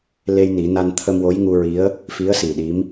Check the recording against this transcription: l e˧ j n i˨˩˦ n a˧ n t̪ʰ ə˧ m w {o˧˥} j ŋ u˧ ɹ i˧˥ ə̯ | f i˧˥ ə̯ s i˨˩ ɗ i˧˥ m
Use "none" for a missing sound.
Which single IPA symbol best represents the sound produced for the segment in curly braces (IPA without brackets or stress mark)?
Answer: o˧˥